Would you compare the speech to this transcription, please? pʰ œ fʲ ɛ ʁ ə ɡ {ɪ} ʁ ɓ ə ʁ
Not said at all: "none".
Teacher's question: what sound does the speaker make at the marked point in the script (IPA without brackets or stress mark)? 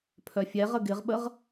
ɪ